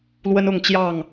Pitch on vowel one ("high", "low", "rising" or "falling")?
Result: high